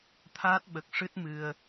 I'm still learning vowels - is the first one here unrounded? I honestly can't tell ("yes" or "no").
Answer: yes